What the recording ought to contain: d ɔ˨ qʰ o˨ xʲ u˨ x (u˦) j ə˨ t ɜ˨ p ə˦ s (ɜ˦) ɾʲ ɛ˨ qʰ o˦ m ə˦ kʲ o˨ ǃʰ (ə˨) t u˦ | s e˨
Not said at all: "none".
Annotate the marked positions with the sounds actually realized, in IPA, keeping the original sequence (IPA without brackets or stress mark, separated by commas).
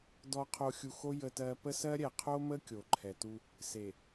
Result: o˦, ɜ˦, ɛ˨